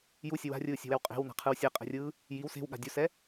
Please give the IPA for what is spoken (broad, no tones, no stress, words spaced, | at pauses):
jusʲʌ wa̤rʲɯːsʲa̤wɛw qʼe̤wna̤qʰɯw sʲɛqʼɛ̤rʲɯː | jiw se̤wɠa̤ dʲusɛ